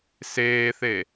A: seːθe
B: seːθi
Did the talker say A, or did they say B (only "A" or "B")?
A